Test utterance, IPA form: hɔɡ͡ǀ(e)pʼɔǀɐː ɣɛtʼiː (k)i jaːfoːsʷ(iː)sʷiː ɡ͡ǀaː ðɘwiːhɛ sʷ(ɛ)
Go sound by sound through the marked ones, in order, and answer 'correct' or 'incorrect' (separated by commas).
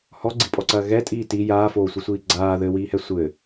incorrect, incorrect, incorrect, incorrect